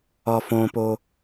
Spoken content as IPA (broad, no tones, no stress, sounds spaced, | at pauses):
ɒ f õ p o